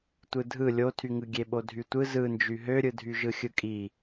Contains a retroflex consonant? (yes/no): no